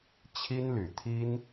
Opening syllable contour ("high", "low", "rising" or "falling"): high